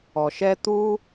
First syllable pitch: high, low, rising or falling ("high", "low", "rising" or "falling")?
low